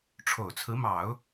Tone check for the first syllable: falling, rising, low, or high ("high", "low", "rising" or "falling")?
low